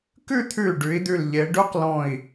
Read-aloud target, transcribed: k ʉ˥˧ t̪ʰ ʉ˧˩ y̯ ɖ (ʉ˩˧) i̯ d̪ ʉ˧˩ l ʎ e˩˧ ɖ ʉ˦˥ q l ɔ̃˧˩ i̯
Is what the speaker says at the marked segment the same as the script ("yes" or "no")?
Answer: yes